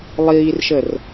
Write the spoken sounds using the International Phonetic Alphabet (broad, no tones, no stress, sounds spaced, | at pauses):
lˠ iː r ʃ ə r